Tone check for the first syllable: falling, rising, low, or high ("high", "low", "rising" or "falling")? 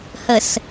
low